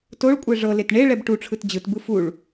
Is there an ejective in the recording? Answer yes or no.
yes